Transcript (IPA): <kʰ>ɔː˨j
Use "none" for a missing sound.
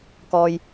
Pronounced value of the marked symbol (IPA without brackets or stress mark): k